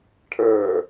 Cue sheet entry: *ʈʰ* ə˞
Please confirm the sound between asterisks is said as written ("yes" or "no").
yes